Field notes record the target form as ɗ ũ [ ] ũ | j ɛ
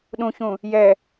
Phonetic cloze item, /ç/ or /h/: ç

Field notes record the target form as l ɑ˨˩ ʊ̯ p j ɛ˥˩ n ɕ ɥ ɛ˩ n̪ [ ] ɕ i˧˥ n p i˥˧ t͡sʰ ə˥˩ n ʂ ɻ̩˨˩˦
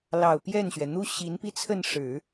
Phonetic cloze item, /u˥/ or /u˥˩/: u˥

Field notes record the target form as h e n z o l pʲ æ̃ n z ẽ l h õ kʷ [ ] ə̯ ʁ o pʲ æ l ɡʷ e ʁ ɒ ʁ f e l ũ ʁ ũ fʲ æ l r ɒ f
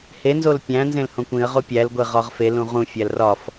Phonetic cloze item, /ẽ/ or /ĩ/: ĩ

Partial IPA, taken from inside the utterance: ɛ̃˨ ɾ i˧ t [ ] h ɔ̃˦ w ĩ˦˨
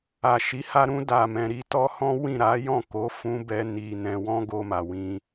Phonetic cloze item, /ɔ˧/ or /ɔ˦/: ɔ˦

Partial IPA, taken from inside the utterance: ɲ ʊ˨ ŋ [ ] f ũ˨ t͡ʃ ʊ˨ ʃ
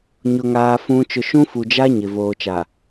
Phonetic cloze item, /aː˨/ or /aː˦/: aː˨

